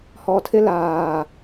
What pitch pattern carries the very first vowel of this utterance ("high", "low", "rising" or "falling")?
low